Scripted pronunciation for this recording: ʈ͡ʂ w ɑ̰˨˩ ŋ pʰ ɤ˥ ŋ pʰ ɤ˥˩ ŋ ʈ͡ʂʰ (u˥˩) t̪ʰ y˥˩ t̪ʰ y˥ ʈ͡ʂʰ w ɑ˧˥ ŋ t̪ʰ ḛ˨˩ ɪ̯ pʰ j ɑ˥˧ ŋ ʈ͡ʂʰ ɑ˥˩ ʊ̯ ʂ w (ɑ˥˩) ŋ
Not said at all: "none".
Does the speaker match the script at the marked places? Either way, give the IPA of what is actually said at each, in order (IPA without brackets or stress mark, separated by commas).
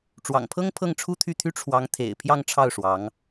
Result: u˥, ɑ˧˥